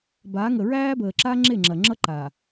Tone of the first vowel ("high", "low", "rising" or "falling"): rising